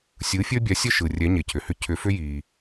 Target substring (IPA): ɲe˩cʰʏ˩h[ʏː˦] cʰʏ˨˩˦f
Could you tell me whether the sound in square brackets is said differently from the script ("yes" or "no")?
yes